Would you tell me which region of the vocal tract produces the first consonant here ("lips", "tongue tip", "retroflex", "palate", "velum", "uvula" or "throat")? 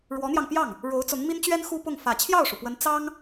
retroflex